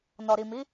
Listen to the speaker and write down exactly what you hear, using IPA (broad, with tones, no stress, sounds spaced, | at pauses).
n ɔ˨ ɾ i˨ m i˨˦